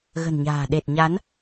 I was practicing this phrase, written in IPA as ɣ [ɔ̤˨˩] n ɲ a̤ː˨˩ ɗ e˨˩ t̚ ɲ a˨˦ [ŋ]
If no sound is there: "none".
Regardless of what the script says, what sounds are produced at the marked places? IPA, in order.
ə̤˨˩, n

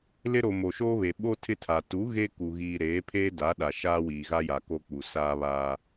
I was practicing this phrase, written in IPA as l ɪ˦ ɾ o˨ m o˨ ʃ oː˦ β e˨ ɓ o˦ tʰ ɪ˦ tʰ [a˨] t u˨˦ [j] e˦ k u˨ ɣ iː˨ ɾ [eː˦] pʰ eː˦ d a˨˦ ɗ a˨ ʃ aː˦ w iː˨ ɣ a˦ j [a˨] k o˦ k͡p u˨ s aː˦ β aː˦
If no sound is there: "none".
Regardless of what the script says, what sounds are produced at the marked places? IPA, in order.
a˨, ɣ, eː˨˦, a˨

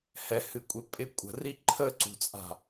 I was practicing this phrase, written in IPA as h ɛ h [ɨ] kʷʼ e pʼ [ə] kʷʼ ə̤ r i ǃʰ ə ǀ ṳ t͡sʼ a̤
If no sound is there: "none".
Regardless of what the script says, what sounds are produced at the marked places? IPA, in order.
ɨ, ɪ

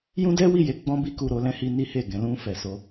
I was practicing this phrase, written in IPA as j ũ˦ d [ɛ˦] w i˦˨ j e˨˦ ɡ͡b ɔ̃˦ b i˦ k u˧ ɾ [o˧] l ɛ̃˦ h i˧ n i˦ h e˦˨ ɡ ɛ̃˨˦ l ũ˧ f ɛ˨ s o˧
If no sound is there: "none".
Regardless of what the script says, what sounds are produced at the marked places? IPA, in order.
ɛ˦, o˧

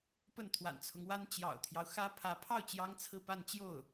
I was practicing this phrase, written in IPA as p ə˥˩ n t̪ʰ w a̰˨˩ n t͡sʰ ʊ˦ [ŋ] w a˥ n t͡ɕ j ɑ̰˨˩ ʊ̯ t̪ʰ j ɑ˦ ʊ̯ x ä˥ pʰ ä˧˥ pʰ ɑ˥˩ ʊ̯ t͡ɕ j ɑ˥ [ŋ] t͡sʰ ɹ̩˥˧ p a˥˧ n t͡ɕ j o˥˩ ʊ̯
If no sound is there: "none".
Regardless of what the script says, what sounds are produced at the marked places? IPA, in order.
ŋ, ŋ

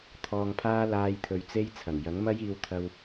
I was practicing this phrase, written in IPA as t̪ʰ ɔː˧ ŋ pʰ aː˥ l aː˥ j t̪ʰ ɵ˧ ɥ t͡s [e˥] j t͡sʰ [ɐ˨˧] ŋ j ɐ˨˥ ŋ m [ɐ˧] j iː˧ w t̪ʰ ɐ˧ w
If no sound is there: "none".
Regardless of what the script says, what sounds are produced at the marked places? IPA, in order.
e˥, ɐ˨˩, ɐ˥

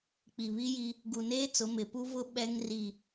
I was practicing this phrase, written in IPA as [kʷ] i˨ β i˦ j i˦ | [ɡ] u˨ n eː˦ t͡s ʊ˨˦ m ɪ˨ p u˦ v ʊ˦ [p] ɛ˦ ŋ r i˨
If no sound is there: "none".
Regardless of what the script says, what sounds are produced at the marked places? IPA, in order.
k͡p, ɡ, ɓ

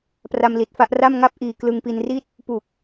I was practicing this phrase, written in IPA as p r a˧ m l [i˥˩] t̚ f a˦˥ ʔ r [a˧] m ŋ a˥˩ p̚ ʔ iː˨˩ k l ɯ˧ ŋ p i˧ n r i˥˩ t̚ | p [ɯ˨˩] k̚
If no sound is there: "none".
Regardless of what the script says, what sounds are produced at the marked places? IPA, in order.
i˨˩, a˥˩, u˨˩

